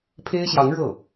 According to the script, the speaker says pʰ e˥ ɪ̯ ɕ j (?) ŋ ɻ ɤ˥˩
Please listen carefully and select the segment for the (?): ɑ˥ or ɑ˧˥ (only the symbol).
ɑ˧˥